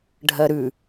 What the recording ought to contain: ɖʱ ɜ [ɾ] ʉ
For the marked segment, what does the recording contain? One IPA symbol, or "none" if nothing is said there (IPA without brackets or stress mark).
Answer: ɾ